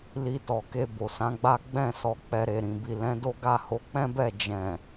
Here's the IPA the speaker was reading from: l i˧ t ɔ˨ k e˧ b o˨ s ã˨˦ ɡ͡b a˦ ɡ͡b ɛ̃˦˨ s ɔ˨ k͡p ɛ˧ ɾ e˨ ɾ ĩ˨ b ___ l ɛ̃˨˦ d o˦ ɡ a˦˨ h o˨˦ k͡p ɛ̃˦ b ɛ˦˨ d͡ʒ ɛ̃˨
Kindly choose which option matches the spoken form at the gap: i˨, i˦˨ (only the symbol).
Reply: i˨